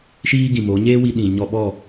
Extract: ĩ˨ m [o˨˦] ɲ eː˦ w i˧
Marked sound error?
no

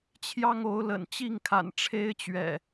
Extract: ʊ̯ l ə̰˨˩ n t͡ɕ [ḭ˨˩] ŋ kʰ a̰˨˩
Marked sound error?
yes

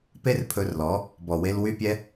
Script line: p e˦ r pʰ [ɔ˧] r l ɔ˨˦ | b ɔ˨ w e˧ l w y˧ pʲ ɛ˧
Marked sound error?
yes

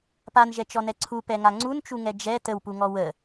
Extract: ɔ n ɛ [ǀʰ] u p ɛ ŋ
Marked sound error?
no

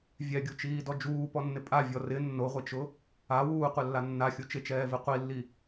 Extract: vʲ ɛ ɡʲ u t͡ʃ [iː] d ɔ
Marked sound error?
no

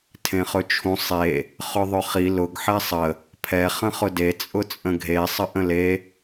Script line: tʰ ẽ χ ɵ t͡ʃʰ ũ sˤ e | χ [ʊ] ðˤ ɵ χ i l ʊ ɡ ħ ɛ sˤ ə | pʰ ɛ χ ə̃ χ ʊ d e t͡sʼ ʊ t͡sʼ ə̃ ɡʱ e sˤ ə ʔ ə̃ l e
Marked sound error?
yes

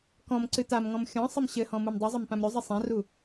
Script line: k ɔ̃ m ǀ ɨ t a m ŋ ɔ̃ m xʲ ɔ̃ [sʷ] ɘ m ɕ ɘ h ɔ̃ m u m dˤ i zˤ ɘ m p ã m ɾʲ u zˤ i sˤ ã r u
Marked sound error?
yes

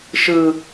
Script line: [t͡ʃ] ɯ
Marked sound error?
yes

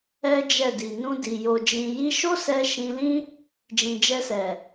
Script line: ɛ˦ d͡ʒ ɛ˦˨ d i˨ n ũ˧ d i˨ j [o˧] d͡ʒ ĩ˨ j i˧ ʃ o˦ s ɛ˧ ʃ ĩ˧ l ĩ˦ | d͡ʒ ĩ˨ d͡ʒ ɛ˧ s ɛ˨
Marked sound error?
yes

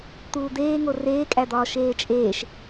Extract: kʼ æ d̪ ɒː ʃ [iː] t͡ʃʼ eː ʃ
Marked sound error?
yes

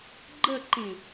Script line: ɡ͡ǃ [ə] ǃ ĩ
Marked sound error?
no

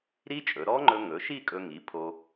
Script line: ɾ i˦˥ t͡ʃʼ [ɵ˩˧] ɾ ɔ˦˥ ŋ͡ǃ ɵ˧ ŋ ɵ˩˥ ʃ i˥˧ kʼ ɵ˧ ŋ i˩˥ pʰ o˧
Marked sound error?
no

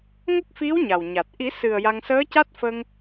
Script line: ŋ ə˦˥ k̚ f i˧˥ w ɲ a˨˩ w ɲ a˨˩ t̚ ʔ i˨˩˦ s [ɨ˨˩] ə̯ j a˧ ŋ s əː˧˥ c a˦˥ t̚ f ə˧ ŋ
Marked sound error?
no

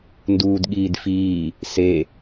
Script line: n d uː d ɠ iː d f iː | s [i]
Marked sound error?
yes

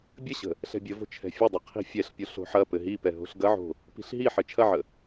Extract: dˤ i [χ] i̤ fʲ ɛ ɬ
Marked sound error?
yes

